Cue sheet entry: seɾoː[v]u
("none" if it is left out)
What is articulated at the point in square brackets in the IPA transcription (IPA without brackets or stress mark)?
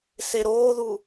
ð